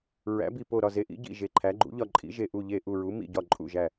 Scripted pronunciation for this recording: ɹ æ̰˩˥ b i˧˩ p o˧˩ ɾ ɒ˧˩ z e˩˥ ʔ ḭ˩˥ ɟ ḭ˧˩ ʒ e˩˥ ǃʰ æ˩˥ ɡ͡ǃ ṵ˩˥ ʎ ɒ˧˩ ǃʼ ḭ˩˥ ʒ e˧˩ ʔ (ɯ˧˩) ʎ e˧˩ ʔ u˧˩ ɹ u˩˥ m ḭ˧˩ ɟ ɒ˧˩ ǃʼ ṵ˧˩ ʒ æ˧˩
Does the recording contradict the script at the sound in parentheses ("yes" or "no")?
yes